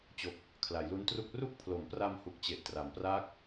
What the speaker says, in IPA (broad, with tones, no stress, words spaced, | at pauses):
t͡ɕo˨˩k̚ | kʰla˩˦jlu˦˥ntru˥˩k̚ ru˥˩k̚pʰlo˩˦mpra˧mhu˨˩k̚ t͡ɕe˨˩ʔ tra˩˦mpraː˥˩k̚